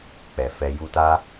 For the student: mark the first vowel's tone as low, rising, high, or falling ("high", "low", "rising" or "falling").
low